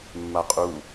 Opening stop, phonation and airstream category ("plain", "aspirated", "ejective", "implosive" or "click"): ejective